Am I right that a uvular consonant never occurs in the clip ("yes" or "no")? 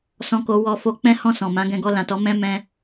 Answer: yes